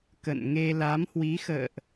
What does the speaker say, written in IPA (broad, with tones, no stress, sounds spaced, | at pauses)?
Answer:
k ə̰˧˨ n ŋ e˧ l a˨˦ m h w i˨˦ x ə̰ː˧˨ ʔ